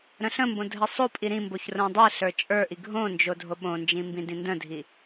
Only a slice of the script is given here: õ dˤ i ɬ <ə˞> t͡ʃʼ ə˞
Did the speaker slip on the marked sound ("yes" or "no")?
no